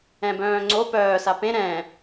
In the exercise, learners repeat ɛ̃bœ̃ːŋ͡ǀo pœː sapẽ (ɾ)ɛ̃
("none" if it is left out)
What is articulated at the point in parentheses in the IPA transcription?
ɾ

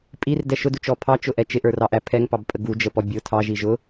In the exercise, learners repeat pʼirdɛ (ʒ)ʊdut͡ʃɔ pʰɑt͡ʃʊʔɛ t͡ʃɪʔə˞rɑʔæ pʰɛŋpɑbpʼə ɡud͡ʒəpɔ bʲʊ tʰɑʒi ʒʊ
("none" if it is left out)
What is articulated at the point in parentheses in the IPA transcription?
ʃ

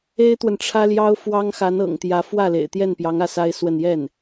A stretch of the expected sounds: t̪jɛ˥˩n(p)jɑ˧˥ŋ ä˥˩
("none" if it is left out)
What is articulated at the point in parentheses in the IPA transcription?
p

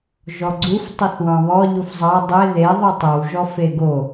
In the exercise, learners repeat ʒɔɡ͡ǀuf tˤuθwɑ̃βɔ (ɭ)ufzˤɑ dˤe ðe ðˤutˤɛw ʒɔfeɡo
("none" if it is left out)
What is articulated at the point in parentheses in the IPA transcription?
ʎ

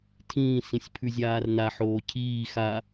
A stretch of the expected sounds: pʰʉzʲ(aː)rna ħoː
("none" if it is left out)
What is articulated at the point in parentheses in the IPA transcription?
aː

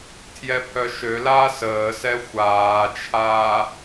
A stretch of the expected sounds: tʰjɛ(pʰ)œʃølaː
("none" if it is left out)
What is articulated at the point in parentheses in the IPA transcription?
pʰ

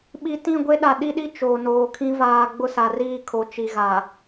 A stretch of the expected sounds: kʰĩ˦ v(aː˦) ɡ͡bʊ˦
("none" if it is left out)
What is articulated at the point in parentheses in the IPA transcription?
aː˨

